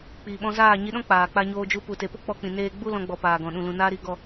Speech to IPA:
k͡piː˨ɓɔ̃˧zaː˦˨ ɲi˧ɗɔ̃˦ k͡paː˨k͡pa˧ɲoː˧d͡ʒu˧ pu˨te˨po˦ k͡pɔ˧ k͡pĩ˨neː˦ ɡ͡bu˦lɔ̃˧ ɡ͡bɔ˨ paː˨ɡɔ̃˨ ɗũ˨lũ˨ naː˧ɾi˨ ɡɔ˦˨

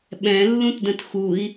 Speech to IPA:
ɓɛ̃lːũtdə̃t xui̯

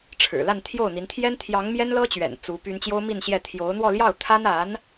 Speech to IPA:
ʈ͡ʂʰɻ̩˨˩la˥˧nt̪ʰjo˥˩ʊ̯n̪i˧˥n t̪ʰjɛ˥nt̪ʰjɑ˧˥ŋ mjɛ˥nlɤ˥t͡ɕɥɛ̰˨˩n t͡su˧˥py˥n t͡ɕjo˥ʊ̯mi˥˧nɕjɛ˥˩ t̪ʰjo˧˥ʊ̯n̪wɔ˥˧ ljɑ˥˩ʊ̯t̪ʰa˥na˧˥n

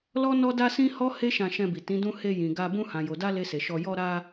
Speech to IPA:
lɔ˦nɔ˦ da˦sĩ˦hɔ˦ he˦ʃã˧ʃɛ̃˧ bi˨tĩ˨˦dũ˦ he˧jĩ˨ɡa˧ bũ˧hã˨jo˨da˧ le˧se˨ʃɔ˧ jɔ˧ɾa˧

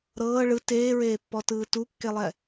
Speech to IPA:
ɾɤː ɭɯ teːɹeːpːɔtɯː tukːelˠɛ

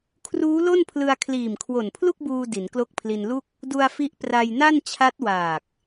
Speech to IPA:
kʰruː˦˥lo˥˩npʰlɯ˧a̯ kʰliː˨˩mkʰwo˨˩npʰlu˥˩k̚buː˧ di˩˦nklo˦˥k̚pʰli˧n lu˥˩k̚ | du˧a̯fi˦˥ʔ pra˧jna˥˩n t͡ɕʰa˦˥t̚waː˨˩k̚

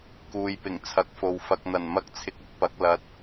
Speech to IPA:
kuː˨jpɪ˨˩ŋt͡sʰɐ˨k̚fo˨w fɐ˨k̚n̪ɐ˨˩n mɐ˧k̚t͡sʰɪ˨k̚ʊ˥k̚ pɐ˨˥k̚lɐ˧t̚

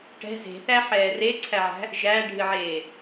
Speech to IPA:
ʈɛ̤ ze̤θæħɛː reǀʰæʕæ̤ | ʒæɖʱɨʕeː

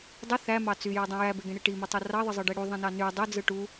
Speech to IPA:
dˤɯ θæmɑ t͡syjodˤũ jæbeɡẽɽe ʈimitˤo rɑðˤɯzˤɯɖe ɽuðˤĩnɑ ny dˤød͡zɯ ʈu

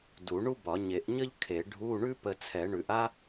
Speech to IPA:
du˨˩˦ɳu˥bɒ˨˩˦ ɲe˨˩˦ʔɲə˥ʎ kʰe˨˩˦ ɖʱu˧˥˧ɳʉ˥ pə˧ t͡sʰɛ˨˩˦ɳʉ˨˩˦ʔ a˥

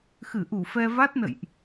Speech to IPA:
xɨ˧˩ʔu˧˩ fɛ˧va˦˥t̚nə̰˧˨jʔ

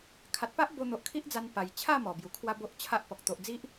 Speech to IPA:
kʰa˨t̚pa˦ʔ bo˧n̪o˨ʔkʰi˦ʔd͡za˧n pa˨˩j t͡ɕʰa˥˧ mɔ˨˩bju˨˩kʰwa˦ bo˦ʔt͡ɕʰa˦ʔpɔ˨k̚ t̪o˨ʔd͡zi˦ʔ

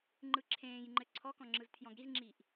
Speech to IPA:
ŋ͡ǃɯǁʰẽːjŋ͡ǃɘ ǀʰɔkɔ̃ ŋ͡ǁɯztʰjɔ̃ɡɾizŋ͡ǁiːʔ

